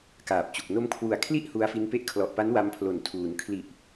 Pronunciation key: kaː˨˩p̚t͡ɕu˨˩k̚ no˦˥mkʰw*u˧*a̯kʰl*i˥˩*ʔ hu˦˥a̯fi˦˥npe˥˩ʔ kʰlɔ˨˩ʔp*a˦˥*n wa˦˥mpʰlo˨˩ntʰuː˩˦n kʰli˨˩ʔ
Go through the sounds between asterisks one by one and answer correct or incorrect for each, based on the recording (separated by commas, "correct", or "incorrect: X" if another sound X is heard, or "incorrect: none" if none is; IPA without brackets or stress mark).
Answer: incorrect: u˨˩, correct, correct